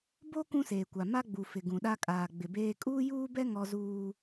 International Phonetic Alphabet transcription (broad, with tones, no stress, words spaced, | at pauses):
bo˦ kũ˦seː˨kʷa˨ ma˦ɡ͡bu˨fɪ˨ ɡũ˨ɗa˦ kʼaː˨ɡ͡bɪ˨beː˦ kʼuː˦juː˦bɛ˦ ŋɔ˦zuː˦